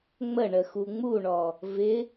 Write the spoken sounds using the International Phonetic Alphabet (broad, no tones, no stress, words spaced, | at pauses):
ŋ͡məɳə xuŋ͡muɳɔ | vɪ